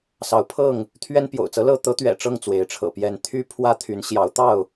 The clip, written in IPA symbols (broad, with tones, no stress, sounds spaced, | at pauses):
s ɑ˨˦ ʊ̯ pʰ ɤ˥˨ ŋ | t̪ʰ ɥ ɛ˦ n p j o̰˨˩ ʊ̯ t͡s ɤ˦ l ɤ˥˨ t̪ ɤ˦ t̪ ɥ ɛ̰˨˩ ʈ͡ʂ ɤ˥˨ ŋ t͡s w e˨˦ ɪ̯ ʈ͡ʂʰ ɤ̰˨˩ p j ɛ˥˨ n t̪ʰ y˦ pʰ w ä˦ t̪ʰ y˨˦ n ɕ j ɑ˨˦ ʊ̯ t̪ ɑ˥˨ ʊ̯